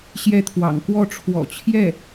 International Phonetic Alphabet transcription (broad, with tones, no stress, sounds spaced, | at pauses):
ɕ j ɛ˥˩ t̪ʰ w ɑ̰˨˩ ŋ k w ɔ˥˩ ʈ͡ʂʰ w ɔ̰˨˩ t͡ɕʰ j ɛ˥˩